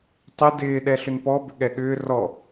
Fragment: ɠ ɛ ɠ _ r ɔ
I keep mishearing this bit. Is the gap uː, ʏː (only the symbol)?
ʏː